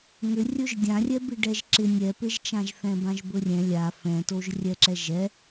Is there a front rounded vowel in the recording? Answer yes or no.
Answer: yes